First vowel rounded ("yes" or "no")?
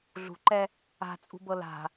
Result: yes